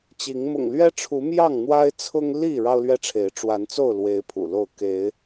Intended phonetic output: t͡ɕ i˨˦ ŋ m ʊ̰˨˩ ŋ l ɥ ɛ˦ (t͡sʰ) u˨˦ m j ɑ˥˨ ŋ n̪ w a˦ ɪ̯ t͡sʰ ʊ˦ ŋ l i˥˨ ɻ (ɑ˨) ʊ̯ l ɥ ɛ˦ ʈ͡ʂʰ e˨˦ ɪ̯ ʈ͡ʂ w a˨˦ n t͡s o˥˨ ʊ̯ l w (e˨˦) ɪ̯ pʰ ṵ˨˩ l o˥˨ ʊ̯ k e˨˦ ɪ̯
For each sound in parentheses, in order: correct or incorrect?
incorrect, incorrect, correct

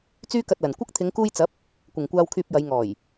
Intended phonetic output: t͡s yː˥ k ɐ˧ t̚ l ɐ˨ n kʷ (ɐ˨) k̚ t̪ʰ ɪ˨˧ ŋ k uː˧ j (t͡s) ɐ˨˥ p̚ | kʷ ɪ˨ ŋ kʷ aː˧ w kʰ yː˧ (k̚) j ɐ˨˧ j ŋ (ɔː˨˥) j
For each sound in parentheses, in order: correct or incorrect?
incorrect, correct, incorrect, incorrect

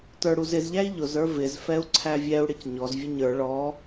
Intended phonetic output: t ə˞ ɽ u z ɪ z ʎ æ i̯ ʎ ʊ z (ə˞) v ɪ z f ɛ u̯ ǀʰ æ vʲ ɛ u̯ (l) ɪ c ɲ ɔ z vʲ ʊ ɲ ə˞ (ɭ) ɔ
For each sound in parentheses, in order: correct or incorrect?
correct, incorrect, correct

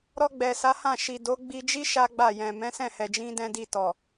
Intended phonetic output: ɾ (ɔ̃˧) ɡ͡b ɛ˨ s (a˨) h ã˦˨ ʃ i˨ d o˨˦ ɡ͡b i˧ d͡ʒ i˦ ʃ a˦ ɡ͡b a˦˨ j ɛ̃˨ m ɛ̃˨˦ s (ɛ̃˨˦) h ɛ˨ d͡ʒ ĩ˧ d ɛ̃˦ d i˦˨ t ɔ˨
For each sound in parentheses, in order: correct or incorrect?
incorrect, incorrect, incorrect

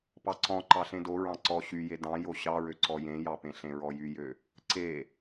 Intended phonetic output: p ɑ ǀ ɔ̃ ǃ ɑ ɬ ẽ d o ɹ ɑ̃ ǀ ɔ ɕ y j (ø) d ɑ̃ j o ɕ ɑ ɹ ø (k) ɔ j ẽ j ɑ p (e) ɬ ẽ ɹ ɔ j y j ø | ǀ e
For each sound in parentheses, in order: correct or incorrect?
incorrect, incorrect, incorrect

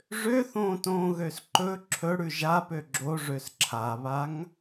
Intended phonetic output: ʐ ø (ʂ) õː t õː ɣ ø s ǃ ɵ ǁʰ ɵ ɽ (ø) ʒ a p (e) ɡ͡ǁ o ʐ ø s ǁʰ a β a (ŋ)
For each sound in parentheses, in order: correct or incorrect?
incorrect, incorrect, incorrect, correct

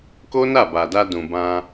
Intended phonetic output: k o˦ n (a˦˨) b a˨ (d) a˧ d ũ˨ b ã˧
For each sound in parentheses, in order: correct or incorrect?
correct, correct

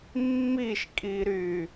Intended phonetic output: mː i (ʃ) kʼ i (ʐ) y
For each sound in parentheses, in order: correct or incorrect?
correct, incorrect

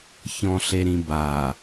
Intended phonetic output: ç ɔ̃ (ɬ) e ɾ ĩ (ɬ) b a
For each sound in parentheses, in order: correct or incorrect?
correct, incorrect

